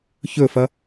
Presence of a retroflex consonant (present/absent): absent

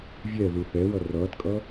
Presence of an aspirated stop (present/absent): absent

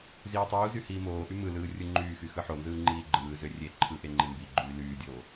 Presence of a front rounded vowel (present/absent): present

